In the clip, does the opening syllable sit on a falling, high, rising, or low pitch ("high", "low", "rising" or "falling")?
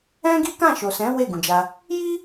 high